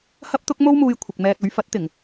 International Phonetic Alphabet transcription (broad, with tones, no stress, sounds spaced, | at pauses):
h ɐ˥ p̚ t̪ ʊ˥ k̚ m o˥ w m uː˧ j kʷʰ ɪ˨ k̚ m ɛː˧ k̚ ɵ˨˥ ɥ f ɐ˨˥ t̚ t̪ ɪ˨˩ ŋ